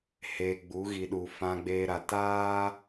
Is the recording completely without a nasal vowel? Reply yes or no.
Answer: no